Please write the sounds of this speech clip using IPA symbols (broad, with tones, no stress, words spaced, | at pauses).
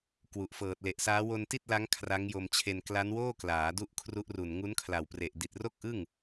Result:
kwu˨˩ʔfɤː˨˩t̚le˨˩ʔsaː˦˥ wo˧nti˥˩t̚la˦˥ŋ kʰra˦˥ŋjo˧mt͡ɕʰe˧n kla˦˥nwoː˥˩ klaː˩˦du˦˥ʔkʰru˦˥ʔru˨˩n ŋu˦˥nkʰla˨˩wpre˨˩ʔ di˨˩t̚ro˥˩k̚ʔɯ˥˩ŋ